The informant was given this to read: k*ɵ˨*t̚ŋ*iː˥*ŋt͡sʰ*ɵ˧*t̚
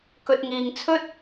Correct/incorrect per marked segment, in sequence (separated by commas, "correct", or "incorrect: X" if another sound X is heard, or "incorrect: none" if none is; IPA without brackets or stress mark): correct, incorrect: iː˨, incorrect: ɵ˥